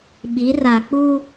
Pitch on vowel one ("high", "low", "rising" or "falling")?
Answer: rising